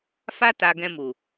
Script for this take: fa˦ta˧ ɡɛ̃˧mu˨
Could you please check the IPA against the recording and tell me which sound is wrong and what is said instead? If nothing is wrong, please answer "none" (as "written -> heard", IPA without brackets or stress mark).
none